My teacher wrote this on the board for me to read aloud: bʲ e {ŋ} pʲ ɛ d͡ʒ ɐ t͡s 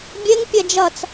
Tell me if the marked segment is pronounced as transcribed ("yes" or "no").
yes